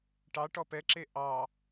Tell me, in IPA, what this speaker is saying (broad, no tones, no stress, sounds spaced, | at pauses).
ʈ ɑ ʈ ɔ p ɛ ǁ e ʔ ɑ